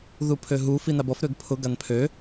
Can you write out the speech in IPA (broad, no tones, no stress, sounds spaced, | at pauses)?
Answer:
ð u pʰ ø ɦ u f i n a b ɔ f ɾ ø ɡ pʰ ʊ ɡ a n pʰ ø